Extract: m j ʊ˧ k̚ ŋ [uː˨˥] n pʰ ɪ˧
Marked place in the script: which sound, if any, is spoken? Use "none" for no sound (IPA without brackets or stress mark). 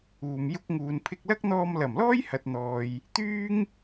uː˨